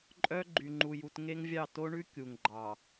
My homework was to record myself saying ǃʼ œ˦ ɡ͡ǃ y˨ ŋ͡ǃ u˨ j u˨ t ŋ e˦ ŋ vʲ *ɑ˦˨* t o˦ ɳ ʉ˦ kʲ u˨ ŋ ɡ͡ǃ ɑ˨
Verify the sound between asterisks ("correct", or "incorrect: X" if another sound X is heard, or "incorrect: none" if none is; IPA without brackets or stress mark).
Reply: correct